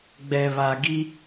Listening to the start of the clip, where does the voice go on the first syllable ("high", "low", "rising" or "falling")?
low